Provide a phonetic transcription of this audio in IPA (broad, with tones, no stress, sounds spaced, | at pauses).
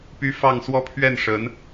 p y˥ f ɑ˥˧ ŋ s w ɔ˥˧ pʰ ɥ ɛ˥˩ n ʂ ə˧˥ n